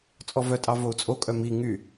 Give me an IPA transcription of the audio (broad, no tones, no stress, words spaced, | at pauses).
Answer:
t͡sʼɔvœtʼɑ vou̯t͡sʼokʼœ mi ŋy